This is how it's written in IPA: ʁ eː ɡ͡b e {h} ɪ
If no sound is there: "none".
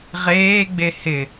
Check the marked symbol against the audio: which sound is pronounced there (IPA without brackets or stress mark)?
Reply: h